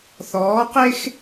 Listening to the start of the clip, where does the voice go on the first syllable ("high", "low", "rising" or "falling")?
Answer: rising